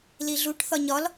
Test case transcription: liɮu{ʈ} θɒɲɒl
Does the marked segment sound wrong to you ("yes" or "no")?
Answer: no